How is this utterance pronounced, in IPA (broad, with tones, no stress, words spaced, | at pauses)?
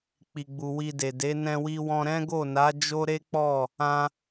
k͡pi˨ɡ͡bu˨ wi˧de˨de˨˦ nɛ̃˧wi˧wɔ̃˧ ɾɛ̃˦ɡo˦˨na˨˦ d͡ʒo˦ɾe˦k͡pɔ˦˨ | ã˧